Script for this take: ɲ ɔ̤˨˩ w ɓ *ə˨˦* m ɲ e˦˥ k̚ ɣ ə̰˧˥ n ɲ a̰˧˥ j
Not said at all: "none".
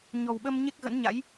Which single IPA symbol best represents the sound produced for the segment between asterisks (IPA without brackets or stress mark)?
ə˧